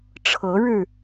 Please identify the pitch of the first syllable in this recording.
rising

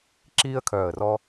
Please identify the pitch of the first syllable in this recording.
high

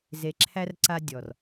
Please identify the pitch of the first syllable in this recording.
low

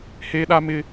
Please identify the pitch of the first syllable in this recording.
high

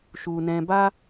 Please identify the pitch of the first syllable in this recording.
low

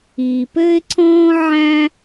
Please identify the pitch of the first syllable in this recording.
low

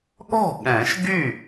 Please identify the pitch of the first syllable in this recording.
falling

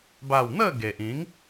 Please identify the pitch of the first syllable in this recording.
falling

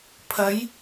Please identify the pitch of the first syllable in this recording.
rising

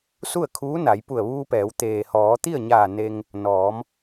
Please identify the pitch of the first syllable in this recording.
falling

